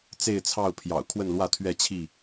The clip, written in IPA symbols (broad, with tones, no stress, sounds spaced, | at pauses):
t͡s e˥˨ ɪ̯ t͡sʰ ɑ˥˨ ʊ̯ pʰ j ɑ̰˨˩ ʊ̯ kʰ w ə˥˨ n l w ä˥˨ t̪ʰ ɥ ɛ˥˨ t͡ɕʰ i˥˨